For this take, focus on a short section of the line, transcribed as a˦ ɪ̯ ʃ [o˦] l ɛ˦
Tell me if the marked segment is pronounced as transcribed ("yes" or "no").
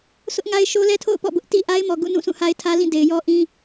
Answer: yes